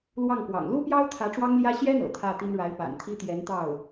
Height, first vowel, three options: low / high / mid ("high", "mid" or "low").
low